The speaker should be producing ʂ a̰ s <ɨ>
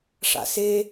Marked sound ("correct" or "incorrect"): incorrect